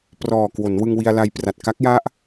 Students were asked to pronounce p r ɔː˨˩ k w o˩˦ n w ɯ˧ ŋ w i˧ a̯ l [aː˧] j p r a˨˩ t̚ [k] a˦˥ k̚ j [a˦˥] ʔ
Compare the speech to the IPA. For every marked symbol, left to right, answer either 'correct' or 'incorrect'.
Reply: incorrect: a˧, correct, correct

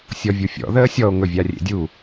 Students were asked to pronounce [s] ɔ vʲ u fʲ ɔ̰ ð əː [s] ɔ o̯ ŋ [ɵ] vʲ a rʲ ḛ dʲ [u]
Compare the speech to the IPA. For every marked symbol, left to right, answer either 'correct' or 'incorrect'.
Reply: incorrect: sʲ, incorrect: sʲ, correct, correct

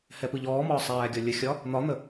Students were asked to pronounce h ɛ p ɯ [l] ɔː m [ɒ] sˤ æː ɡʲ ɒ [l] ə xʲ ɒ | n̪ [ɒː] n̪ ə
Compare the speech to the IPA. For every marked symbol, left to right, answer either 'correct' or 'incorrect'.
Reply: incorrect: ʎ, incorrect: ɒː, incorrect: lʲ, incorrect: ɒ

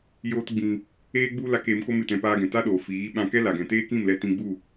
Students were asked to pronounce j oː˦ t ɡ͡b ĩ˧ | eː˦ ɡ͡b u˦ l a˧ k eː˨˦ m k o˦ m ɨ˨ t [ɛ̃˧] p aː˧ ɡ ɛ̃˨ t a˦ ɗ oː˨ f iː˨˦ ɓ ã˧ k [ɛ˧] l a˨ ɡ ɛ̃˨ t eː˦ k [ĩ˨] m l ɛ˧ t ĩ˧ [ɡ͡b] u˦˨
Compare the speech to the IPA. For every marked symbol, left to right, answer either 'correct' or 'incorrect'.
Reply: correct, incorrect: ɛ˦, incorrect: ĩ˦˨, correct

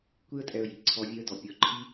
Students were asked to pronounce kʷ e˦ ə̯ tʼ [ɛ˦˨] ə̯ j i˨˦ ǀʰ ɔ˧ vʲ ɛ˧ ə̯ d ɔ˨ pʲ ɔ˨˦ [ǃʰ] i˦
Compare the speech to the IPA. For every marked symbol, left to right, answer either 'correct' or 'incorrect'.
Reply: incorrect: ɛ˧, correct

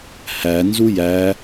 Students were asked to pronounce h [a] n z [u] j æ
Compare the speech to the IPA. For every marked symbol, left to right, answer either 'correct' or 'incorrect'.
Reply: incorrect: æ, correct

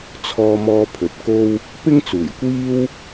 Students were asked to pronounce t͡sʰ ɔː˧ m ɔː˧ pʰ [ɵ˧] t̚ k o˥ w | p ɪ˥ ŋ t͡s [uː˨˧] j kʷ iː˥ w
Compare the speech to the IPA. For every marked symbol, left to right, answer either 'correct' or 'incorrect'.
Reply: incorrect: ɵ˨, incorrect: uː˨˩

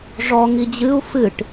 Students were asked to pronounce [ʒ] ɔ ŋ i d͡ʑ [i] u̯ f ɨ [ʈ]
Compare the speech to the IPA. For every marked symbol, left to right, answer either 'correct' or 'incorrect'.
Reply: incorrect: ʐ, incorrect: ɨ, correct

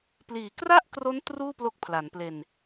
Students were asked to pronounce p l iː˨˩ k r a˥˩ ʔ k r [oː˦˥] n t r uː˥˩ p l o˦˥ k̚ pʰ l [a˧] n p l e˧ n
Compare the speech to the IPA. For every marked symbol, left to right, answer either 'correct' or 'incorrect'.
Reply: incorrect: o˦˥, incorrect: a˩˦

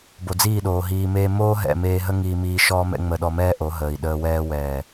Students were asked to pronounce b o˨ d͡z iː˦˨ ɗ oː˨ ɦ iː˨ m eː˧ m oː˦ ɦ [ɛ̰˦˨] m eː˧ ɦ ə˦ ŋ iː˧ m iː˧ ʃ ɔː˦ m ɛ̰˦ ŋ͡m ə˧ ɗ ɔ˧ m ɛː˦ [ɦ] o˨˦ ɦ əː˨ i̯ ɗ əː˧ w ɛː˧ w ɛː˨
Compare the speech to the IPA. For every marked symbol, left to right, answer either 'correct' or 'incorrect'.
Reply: correct, incorrect: ʔ

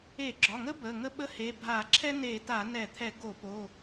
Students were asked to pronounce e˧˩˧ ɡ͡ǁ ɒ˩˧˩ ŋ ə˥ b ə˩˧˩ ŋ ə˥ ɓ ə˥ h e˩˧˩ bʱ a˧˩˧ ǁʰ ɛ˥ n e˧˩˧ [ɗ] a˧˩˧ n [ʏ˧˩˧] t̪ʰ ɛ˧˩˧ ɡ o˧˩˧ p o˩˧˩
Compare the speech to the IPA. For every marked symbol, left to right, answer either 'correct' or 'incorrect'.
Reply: incorrect: t, incorrect: ɛ˧˩˧

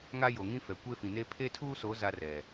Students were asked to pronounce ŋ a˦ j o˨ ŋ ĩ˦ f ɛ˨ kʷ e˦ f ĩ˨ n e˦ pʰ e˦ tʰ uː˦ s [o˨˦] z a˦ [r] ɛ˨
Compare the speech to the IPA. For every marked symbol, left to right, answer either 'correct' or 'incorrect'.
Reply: correct, correct

